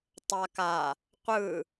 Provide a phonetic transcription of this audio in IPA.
tˤaka | qʷɯ

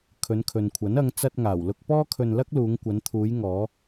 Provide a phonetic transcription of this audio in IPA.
kʰɵ˨˧nkʰɵ˨nkʷʰɐ˨˥n ɐ˨˧ŋ t͡sɐ˧t̚ŋaː˨˩wlʊ˧k̚ pɔː˥kʰɵ˧nlɐ˥k̚luː˨˧ŋ kʷɐ˨˧nt̪ʰuː˨˧j ŋɔː˨˧

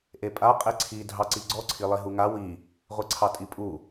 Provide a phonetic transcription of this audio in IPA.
ʔepʼa qʼeǀʰi dʱɑǀiɡ͡ǀɔǀʰi lˠiɦuŋa wi | ʁʷiǀʰɑtʼipʼu

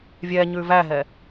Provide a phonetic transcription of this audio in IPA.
vʲɛɲʉ væɦɛ

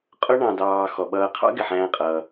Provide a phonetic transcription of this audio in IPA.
qʼʊ˥ ɳɑ̃˨dɑː˨ xɔ˩ɓʌː˨qʰɑ̰˥ ɡɪ˩ħæ̃ː˨qʼʌː˩

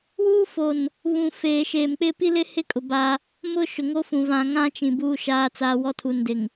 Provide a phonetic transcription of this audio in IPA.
wuː˦fo˨n | βũ˨ feː˨ʃeː˨mk͡pɪ˦ pi˦lɪ˦hɪ˦kʼʊ˨ ba˦ | mʊ˦ ʃʊ˨ŋo˦fũ˨ vã˨ŋã˦t͡ʃĩ˨ buː˦ʃaː˦t͡saː˦ wɔ˦tʰu˨ndɪ˨ŋ

